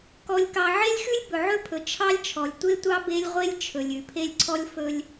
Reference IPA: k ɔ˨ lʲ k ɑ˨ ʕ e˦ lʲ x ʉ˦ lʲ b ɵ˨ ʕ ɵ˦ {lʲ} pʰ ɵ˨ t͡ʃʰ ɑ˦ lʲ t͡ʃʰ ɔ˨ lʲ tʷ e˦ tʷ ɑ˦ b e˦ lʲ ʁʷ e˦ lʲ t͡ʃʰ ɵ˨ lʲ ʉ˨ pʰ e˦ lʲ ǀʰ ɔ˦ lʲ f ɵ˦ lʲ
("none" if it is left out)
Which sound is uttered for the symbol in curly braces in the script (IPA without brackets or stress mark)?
none